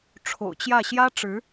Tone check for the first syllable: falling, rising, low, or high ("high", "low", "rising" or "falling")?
low